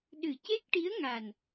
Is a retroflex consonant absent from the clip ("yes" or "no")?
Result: no